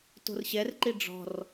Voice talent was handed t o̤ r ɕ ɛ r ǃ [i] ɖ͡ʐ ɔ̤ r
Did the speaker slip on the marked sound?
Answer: no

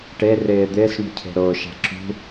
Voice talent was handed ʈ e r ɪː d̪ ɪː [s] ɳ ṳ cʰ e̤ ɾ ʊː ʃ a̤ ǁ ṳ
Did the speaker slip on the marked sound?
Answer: no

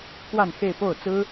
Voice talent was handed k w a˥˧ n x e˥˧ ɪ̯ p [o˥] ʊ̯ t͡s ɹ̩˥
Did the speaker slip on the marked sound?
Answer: yes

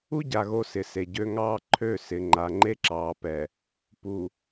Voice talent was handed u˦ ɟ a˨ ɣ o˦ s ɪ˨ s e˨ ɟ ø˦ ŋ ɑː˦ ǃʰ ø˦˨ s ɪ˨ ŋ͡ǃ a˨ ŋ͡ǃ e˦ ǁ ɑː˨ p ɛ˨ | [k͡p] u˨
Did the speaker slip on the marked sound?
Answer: yes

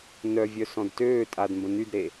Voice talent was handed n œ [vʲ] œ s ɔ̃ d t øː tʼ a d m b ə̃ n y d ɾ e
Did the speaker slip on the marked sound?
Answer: no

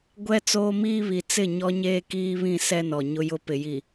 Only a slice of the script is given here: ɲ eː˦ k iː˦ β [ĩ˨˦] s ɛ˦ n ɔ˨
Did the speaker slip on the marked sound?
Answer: yes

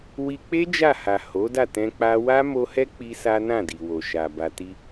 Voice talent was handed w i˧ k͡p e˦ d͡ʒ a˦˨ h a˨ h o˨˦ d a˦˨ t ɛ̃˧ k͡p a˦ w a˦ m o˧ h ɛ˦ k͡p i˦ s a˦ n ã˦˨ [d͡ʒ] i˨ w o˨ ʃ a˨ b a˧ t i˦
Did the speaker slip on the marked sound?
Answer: yes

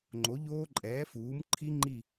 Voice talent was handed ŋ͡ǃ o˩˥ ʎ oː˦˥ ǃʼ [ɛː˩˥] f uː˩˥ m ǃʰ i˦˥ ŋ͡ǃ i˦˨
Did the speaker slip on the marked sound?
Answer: no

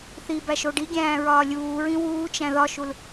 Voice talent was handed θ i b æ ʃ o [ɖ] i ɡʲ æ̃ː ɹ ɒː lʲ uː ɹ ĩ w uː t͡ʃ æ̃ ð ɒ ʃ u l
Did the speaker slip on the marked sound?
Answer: no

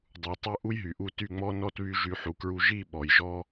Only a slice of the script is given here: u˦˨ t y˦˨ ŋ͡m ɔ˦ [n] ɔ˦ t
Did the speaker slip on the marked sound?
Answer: no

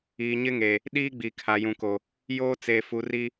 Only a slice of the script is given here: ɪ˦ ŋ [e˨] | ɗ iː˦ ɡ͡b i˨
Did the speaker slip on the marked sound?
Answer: no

